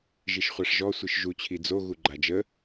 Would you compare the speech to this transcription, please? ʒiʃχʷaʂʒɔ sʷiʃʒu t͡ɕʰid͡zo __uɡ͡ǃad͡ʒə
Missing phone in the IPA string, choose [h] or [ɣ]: ɣ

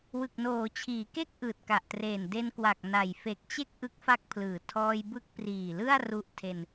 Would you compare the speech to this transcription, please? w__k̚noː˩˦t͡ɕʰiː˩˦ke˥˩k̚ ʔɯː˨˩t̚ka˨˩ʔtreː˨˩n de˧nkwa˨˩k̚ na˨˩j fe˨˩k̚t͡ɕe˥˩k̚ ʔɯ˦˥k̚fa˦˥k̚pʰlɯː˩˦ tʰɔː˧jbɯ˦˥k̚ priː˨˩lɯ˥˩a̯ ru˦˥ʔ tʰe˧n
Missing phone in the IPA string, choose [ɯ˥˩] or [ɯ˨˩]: ɯ˨˩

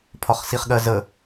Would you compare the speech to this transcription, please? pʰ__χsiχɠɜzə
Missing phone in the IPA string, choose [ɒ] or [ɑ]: ɒ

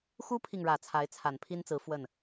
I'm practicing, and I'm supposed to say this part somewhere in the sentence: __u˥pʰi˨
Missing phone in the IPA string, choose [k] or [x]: x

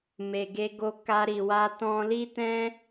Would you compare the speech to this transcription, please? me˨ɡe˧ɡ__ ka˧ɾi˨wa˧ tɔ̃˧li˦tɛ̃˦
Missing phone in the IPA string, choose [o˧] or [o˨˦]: o˧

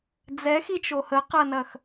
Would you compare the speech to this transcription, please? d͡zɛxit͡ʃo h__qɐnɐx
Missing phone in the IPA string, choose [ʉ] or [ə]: ə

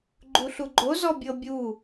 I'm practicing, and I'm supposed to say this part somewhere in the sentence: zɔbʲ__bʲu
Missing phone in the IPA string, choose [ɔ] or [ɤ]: ɤ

